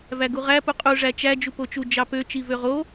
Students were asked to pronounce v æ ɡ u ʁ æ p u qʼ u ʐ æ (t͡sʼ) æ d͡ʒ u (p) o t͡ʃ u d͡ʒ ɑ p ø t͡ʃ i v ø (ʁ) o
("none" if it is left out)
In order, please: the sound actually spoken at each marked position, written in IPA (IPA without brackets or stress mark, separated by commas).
t͡ʃ, p, ʁ